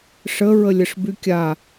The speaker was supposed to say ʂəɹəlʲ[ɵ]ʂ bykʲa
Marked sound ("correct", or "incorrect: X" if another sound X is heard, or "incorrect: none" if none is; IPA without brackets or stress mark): incorrect: ə